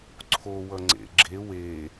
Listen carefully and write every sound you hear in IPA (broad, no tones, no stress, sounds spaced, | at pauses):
ǀʰ o w ʌ ŋ͡ǀ ḛ ɡ͡ǁ e w e